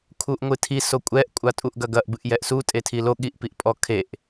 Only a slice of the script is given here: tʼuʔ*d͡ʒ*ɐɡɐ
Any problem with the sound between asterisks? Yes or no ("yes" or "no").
yes